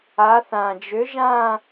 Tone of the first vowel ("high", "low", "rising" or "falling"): rising